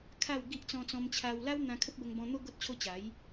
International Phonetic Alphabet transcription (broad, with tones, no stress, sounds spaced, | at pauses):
kʰ a˥˧ w ɡ i˦ ʔ t͡s ɔ̃˧ t͡s ɔ̃˧ m t͡ɕʰ a˧ w l a˦ w n̪ ã˧ kʰ ə˦ p̚ b ə˧ ŋ b ɔ̃˧ n̪ o˦ ɡ o˦ t̚ t͡ɕʰ o˦ t͡ɕ a˨˦ j